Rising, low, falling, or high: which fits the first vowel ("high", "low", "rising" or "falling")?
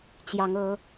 rising